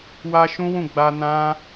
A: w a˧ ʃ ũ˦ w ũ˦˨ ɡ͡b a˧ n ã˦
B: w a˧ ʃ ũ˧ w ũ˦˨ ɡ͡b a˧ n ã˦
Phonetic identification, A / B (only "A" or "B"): A